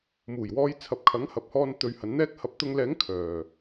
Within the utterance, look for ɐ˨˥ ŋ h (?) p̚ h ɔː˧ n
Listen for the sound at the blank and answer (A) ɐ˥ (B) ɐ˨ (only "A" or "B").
B